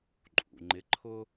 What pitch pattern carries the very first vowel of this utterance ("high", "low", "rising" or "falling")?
low